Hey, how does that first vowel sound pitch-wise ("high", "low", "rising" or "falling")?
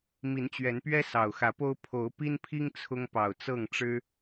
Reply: rising